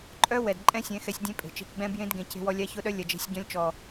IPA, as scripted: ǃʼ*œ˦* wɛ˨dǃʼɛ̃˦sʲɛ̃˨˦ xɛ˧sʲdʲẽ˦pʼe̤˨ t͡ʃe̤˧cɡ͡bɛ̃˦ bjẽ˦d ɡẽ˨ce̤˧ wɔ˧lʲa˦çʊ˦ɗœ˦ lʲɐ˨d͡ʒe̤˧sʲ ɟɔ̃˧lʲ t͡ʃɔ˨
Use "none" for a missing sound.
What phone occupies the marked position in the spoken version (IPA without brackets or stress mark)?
œ˦